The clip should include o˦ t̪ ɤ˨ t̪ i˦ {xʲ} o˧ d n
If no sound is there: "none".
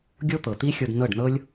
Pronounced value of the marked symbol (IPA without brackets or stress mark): xʲ